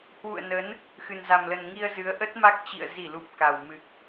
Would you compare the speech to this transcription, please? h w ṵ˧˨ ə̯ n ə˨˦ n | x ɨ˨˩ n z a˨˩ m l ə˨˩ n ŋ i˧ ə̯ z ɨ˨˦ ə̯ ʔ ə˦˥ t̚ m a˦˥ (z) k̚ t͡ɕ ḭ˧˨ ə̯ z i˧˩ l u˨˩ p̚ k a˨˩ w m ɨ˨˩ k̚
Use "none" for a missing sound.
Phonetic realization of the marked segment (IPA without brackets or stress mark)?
none